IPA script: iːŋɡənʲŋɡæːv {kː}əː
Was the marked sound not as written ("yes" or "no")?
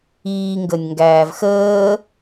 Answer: yes